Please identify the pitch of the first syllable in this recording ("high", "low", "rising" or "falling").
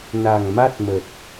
low